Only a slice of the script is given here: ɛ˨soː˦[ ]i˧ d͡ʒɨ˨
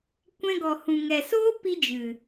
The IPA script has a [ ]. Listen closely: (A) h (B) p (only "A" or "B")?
B